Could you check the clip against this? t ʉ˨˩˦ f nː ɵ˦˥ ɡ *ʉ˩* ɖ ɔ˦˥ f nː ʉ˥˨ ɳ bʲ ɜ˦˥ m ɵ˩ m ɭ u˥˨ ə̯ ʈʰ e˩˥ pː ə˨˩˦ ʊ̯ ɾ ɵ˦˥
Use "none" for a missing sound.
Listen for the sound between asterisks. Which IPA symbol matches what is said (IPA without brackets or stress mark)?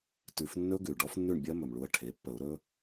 ʉ˩